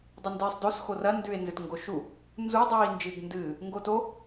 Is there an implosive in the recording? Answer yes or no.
no